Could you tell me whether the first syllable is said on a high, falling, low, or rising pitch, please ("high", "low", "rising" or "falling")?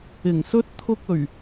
low